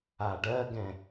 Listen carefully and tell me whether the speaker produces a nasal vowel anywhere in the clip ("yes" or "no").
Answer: yes